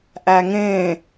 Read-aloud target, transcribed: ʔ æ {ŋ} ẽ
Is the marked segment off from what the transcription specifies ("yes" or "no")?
no